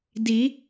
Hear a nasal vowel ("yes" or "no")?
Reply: no